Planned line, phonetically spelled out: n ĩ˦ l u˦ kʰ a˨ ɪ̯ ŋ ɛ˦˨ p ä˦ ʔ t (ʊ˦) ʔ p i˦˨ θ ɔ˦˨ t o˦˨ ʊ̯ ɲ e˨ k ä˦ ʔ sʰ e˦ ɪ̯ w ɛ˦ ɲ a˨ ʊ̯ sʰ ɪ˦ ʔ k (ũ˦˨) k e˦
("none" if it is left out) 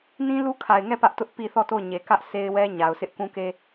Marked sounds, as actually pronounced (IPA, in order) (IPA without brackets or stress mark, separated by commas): ʊ˦, ũ˦